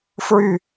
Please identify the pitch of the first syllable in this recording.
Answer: falling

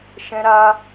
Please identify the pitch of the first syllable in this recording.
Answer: high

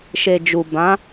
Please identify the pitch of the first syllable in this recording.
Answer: low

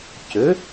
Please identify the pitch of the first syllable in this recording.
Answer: rising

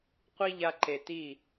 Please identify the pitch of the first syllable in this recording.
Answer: high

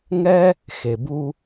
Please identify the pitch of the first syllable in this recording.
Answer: high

